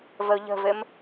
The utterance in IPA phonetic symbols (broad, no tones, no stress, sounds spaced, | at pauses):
v ə ʊ̯ ʎ ə̤ v ɘ m